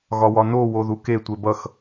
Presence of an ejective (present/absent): absent